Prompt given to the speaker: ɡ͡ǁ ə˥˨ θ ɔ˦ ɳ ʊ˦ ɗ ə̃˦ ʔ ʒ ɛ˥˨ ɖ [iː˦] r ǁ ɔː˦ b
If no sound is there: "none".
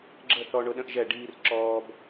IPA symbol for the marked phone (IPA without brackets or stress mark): iː˦